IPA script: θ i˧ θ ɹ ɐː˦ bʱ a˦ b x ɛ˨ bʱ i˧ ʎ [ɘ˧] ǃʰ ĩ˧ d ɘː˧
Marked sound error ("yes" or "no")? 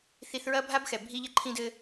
no